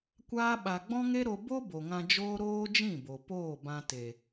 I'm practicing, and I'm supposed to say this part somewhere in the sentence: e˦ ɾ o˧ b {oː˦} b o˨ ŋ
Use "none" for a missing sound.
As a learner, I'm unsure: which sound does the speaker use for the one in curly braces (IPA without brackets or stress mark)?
o˦